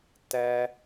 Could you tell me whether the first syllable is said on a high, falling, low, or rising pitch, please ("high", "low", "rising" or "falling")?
high